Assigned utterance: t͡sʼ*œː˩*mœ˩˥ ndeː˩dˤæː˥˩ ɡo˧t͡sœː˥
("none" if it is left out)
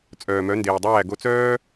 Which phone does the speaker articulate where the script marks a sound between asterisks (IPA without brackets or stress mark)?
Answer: œː˩